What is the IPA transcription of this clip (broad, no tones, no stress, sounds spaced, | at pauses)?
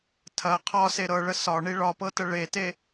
tʰ ɐ qʰ ɒ s e ɾ ɤ ɭ ə s ɒ ɳ i ɭ ɒ p ɤ t ə ɭ e t e